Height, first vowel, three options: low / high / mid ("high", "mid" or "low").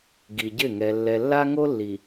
high